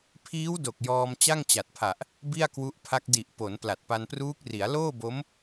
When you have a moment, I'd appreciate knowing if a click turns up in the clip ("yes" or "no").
no